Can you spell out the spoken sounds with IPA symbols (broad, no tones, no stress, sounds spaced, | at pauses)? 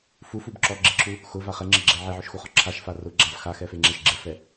f u f u b ǁ ɔ ɡ͡ǁ ɪ ǁʰ u | x ʊ v a χ ɛ ŋ͡ǁ ɪ ɡ͡ǁ ɛ ʕ e ʕ ʊ ʃ x u χ ɔ ǁʰ a ʃ f a r ʊ ɡ͡ǁ a v x a x ɛ f e ŋ͡ǁ e ʃ ɡ͡ǁ ɪ f ɛ